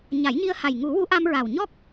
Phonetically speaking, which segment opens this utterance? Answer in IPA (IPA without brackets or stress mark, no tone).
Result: ɲ